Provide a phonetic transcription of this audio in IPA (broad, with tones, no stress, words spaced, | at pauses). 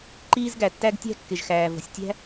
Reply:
ǃiː˥zɡæ˩tːæ˥ɡ tʲæ̤˥kːɪ˩ʒxæː˩ və̤˩sʲtʲæ̤˥